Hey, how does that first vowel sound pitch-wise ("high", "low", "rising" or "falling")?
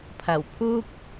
low